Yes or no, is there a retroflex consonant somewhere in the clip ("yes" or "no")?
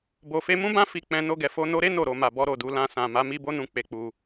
no